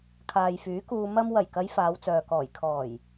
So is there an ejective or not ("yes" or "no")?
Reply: no